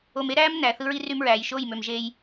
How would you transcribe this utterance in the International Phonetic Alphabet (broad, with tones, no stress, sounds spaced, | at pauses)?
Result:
o˨ m e˦ ɾ æː˦ m n æ˨ θ ɯ˦ ɹ i˦ r y˦ m ɹ æː˨ j ʃ o˦˨ j m ø˨ m ʒ eː˦ j